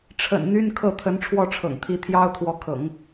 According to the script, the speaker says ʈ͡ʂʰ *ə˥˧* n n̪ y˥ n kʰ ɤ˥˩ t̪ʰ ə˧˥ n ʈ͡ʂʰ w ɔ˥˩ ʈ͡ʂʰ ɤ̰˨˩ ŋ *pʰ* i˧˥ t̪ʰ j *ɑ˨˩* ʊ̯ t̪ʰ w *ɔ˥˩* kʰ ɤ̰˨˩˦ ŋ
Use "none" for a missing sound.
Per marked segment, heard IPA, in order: ə̰˨˩, t̪ʰ, ɑ˥, ɔ˧˥

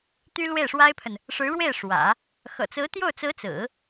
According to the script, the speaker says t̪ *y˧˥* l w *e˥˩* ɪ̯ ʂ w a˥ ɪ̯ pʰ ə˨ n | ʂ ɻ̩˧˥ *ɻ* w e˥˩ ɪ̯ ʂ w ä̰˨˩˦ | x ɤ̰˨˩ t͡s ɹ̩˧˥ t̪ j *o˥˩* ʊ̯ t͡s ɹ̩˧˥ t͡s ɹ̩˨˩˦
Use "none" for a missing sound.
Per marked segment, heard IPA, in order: y˥, e˥˩, ɻ, o˥˩

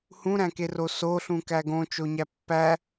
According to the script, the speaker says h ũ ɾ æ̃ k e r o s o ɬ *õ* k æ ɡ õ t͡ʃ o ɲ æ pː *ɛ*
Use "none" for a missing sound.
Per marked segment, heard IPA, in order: ũ, æ

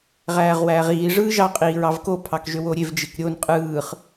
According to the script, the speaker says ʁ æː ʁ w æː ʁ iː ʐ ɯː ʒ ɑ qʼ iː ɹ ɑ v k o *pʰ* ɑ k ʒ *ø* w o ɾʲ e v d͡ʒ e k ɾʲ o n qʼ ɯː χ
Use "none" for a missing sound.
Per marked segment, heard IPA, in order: pʰ, ø

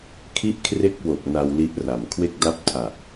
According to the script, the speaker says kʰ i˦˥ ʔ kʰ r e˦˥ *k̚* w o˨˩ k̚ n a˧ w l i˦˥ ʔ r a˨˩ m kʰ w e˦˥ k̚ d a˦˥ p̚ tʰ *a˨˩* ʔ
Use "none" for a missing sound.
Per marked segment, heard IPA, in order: k̚, a˨˩

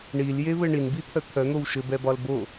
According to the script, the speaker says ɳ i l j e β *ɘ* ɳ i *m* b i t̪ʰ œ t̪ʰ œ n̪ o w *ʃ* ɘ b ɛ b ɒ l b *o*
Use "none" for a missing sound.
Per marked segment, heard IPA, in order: ɘ, n, ʃ, o

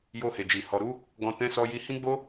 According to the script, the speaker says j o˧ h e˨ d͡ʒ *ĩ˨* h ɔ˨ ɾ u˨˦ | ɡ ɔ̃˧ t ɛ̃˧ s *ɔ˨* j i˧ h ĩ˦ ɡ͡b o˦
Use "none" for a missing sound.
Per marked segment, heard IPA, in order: i˨, ɔ˧

